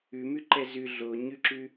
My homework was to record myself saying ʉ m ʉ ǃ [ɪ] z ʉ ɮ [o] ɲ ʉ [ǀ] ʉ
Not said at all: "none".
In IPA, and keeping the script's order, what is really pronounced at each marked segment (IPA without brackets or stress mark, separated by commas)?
ɛ, o, ǁ